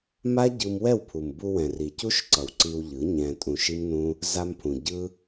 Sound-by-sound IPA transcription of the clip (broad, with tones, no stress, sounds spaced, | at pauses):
m a˦ ɟ ɯ˧ m w ɛ˦˨ w pʰ u˨ m b u˧ w ɛ̃˨ r i˨ c u˦ ʃ ǀ ʌ˨ w ǀ i˧ w ʎ ɯ˨˦ ɲ ɛ̃˧ tʼ ũ˧ ʃ i˦ m n ũ˦ | z a˧ m pʰ ũ˨ ɟ ɯ˦